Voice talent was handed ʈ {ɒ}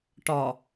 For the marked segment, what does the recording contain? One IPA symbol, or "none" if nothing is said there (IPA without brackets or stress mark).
ɒ